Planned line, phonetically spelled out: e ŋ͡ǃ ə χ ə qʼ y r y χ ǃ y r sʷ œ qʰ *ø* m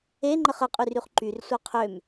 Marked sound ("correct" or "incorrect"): correct